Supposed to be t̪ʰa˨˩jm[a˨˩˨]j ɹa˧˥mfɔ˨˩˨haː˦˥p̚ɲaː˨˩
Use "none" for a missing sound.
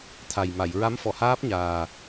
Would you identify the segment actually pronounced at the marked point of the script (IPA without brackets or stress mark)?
a˨˩˨